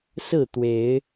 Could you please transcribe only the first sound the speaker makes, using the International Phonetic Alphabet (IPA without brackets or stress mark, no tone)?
s